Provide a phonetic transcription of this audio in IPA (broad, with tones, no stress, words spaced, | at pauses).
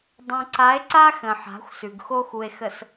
dˤõ˨ ǀa˨˦e̯ǀa˦ xə̃˨ħa̤˨˦xʷ sʉ˨ɡxo˦xu˨e̯xə˨s